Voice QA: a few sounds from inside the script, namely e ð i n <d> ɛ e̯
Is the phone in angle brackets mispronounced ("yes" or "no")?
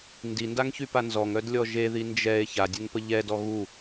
yes